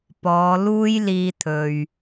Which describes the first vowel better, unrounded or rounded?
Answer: rounded